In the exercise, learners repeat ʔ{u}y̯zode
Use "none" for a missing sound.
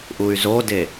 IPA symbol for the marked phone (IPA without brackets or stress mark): u